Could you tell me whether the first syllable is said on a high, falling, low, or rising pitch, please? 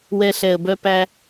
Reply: high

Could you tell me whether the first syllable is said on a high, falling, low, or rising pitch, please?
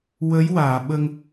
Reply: rising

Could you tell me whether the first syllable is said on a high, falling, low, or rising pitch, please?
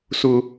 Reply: high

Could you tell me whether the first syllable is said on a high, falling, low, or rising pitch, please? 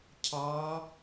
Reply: rising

